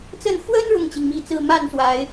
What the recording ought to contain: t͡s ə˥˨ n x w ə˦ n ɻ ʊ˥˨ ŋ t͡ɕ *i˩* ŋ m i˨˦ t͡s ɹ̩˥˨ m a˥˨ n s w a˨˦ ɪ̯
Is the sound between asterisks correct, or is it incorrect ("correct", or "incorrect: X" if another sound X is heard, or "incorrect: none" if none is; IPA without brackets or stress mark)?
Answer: correct